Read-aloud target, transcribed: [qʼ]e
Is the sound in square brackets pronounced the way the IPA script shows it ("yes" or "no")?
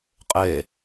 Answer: yes